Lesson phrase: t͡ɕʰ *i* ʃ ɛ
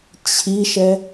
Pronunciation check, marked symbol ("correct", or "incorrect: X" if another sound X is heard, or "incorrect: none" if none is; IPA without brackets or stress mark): correct